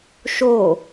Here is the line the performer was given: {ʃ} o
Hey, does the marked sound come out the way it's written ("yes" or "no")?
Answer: yes